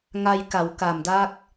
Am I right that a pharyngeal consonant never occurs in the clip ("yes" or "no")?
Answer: yes